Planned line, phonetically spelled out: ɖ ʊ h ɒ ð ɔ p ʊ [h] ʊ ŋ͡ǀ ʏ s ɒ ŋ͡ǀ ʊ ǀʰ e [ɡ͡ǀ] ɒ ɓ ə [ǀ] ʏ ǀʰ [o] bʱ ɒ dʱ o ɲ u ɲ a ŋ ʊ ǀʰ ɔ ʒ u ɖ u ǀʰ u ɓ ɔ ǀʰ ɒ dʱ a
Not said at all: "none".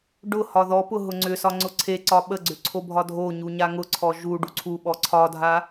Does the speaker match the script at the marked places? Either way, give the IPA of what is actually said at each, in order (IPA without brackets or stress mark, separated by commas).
ɦ, ǀ, ɡ͡ǀ, o